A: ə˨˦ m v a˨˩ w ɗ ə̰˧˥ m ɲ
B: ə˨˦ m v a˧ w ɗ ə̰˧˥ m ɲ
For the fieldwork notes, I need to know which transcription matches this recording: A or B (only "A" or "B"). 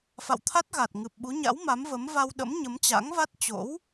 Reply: B